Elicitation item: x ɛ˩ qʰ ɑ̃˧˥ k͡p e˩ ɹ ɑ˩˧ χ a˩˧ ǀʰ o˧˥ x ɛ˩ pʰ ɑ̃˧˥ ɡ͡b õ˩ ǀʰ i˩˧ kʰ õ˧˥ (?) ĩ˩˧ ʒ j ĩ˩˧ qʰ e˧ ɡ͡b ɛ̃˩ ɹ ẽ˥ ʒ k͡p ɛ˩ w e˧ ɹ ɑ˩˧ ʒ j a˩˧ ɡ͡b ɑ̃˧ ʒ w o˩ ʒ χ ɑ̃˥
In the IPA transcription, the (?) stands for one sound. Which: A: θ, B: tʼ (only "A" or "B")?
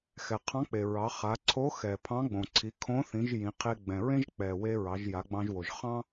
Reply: A